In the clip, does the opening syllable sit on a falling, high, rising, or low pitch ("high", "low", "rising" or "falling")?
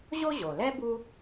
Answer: high